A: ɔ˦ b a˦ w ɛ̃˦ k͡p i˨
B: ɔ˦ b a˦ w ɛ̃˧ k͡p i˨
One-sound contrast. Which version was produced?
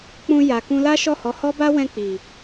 B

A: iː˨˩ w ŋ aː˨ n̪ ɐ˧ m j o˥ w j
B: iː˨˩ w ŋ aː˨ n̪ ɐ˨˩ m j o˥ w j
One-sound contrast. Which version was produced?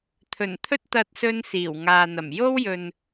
B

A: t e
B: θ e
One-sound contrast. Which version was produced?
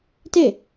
A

